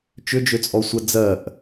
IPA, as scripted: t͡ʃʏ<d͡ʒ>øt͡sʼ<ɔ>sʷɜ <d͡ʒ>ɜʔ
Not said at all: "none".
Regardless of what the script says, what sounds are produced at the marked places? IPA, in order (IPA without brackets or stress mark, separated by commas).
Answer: d͡ʒ, ɔ, d͡z